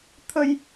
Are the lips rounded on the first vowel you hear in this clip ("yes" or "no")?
no